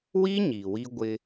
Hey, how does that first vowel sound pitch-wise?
high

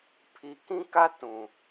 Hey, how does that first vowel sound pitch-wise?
low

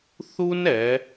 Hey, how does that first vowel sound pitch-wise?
high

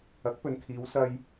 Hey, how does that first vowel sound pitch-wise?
rising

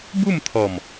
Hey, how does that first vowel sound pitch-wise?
falling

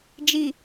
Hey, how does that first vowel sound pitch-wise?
low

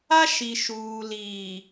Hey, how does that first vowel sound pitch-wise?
high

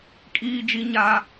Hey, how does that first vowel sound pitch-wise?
low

